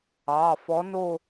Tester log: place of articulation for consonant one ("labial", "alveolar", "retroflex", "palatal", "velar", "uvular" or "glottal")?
labial